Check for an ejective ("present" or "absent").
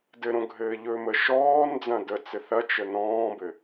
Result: absent